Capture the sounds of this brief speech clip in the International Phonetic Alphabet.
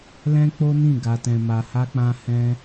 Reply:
l ɛ̃˦ k͡p o˦ n ĩ˦˨ ɡ a˧ t ɛ̃˧ m a˧ h a˦ k͡p ã˦ h ɛ̃˦

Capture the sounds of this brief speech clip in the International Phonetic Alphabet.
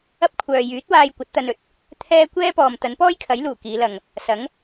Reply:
ɐ˥ p̚ kʷʰ œː˨ j yː˨˥ t̚ w aː˧ j kʷ ɐ˨˥ t̚ t̪ ɐ˧ n ɵ˨˥ t̚ | t̪ʰ ɛː˥ kʷ ɛː˥ p ɔː˨ m t̪ ɐ˨˥ n p ɔː˥ j kʰ ɐ˨˥ j l uː˨˩ k iː˨˧ l ɐ˨ ŋ | s ɐ˨˥ ŋ

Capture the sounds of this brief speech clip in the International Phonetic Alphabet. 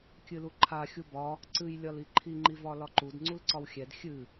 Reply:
kʲ ɨ l u ǃʰ a xʲ u b ɒ | ǀ ɨ j lʲ ɒ l i ǃʰ i ŋ͡ǃ i v ɒ l ɒ ǃ u d ŋ͡ǀ u l ǀ ɒ w xʲ ɛ d xʲ ɨ

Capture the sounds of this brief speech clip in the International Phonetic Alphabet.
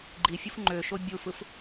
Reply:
ɡ͡ǃ i fʲ u f ŋ͡ǃ ø ʃ o bʲ u f ɯ f

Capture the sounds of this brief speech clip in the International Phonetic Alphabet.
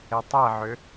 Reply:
e tˤ ɛ ʕ ʏ

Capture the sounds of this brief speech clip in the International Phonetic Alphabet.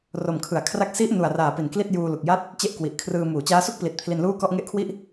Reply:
r o˨˩ m kʰ ɯ˩˦ a̯ kʰ r a˦˥ k̚ s i˦˥ ʔ n u˨˩ a̯ r aː˨˩ p i˨˩ n k l i˥˩ t̚ j uː˧ l u˨˩ k̚ j a˥˩ t̚ | t͡ɕ e˥˩ ʔ k w i˨˩ ʔ kʰ r ɯː˧ m uː˩˦ t͡ɕ aː˦˥ s u˥˩ k̚ p l i˨˩ t̚ pʰ l i˧ n l uː˥˩ k ɔ˥˩ ʔ ŋ e˦˥ ʔ kʰ w i˥˩ ʔ

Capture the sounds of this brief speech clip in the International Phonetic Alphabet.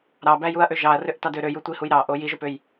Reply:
ɾ ɑ b æ j u ɐ̯ ʔ ø ʒ ɑ ɐ̯ r ø ʔ t ɑ d ø ɾ ø j u tʷ i h u j ɾ ɑ ʔ o j i ʒ o p ø j

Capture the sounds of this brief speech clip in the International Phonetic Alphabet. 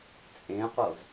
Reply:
t͡sʼ ẽ qʷ ɤ v

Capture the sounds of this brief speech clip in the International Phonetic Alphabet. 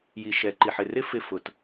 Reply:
j i˩ ʃ ɛ˩ ǃ i˩ ħ ɪ˩ r ɪ˥ f ɪ˧ f ʊ˩ t

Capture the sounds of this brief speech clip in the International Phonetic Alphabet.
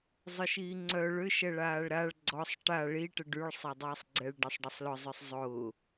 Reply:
zˤ ʊ ʃ iː ŋ͡ǀ œ ɭ ʏ ʃ ɛ ɭ aː ɭ ɾ a ɭ ɡ͡ǀ ɔ sˤ ʈ a ɭ i ʈ ə ɖ y ɭ sˤ a dˤ iː sˤ ɡ͡ǀ ɛ ɭ ɖ ɛ sˤ ɖ ɐ sˤ l ʊ zˤ ʊ sˤ zˤ ʊː

